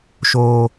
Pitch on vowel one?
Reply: high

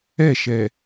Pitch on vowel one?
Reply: falling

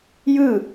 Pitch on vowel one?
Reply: falling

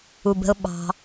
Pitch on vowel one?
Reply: low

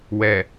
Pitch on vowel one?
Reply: low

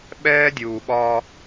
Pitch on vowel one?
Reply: high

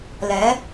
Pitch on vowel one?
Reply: rising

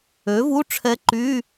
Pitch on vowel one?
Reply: rising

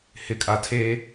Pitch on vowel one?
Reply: low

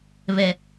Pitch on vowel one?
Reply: low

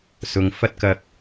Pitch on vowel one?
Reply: low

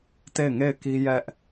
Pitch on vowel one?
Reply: falling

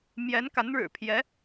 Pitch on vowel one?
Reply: rising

